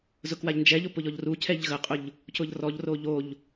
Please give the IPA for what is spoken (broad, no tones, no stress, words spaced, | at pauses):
zʊkwaʎnd͡ʒɛʎʊ pʊʎɔʎrucʰɛʎ ɣəqʼʊʎ | cʊʎrɔʎro ʎoʎ